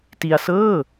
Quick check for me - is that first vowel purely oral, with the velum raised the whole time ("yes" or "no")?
yes